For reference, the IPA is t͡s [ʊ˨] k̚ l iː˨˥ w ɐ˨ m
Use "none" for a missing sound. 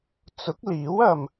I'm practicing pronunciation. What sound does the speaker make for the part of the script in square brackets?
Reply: ʊ˨˥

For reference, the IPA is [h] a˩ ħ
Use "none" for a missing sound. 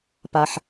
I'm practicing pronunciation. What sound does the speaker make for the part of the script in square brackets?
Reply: p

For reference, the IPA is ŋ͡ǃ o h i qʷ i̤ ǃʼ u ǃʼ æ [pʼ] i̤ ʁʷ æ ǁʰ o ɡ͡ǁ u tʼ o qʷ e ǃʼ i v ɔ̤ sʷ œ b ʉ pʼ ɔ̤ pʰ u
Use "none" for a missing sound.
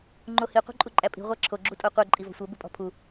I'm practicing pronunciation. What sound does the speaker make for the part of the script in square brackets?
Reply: pʼ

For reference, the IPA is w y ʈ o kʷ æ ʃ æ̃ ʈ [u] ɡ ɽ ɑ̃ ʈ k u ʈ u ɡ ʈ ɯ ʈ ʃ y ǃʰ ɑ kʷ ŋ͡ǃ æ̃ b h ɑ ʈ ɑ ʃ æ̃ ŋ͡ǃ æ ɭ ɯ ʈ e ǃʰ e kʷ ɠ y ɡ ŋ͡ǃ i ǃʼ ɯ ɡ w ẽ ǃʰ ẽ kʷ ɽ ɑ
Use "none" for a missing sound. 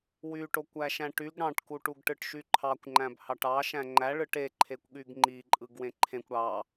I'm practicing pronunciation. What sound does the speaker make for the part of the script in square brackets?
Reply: y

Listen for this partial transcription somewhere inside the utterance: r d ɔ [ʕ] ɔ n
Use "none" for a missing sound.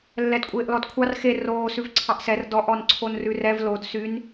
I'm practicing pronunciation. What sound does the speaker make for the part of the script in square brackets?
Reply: ʔ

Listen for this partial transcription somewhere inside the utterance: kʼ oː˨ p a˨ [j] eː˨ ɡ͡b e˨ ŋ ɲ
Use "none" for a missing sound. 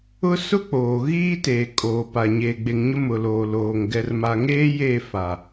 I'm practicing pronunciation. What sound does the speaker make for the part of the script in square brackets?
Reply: ɲ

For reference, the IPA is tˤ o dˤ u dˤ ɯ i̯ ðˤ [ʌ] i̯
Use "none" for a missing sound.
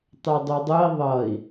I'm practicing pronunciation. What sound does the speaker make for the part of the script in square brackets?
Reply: ʌ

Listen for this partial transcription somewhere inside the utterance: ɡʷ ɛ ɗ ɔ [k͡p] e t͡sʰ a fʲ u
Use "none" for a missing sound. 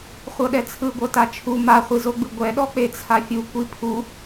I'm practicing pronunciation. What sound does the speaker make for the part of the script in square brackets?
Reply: k͡p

